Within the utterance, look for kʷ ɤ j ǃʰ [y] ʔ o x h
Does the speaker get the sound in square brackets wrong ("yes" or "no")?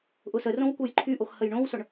no